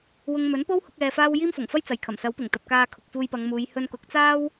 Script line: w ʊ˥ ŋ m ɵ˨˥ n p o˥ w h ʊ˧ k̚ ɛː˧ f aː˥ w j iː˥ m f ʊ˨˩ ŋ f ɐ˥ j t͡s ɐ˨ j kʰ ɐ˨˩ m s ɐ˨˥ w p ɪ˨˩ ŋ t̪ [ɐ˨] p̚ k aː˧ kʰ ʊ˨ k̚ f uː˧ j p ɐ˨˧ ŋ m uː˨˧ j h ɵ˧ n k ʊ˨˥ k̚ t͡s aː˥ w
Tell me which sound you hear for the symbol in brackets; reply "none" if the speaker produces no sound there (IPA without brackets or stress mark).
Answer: ɐ˨